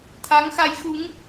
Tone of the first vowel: rising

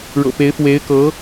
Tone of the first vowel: low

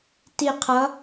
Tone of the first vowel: falling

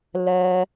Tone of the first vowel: low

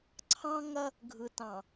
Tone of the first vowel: high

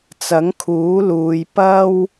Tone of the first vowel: rising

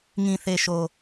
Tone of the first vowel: low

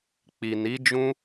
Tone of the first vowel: low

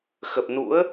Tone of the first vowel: low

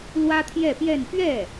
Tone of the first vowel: high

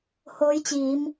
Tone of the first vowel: rising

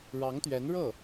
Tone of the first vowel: rising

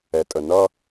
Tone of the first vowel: low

